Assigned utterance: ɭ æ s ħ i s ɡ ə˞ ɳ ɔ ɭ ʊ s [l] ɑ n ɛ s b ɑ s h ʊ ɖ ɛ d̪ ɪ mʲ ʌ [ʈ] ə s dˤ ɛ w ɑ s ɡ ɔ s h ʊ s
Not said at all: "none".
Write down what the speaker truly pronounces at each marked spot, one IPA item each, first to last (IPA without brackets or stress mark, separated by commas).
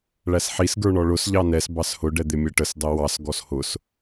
ʎ, ʈ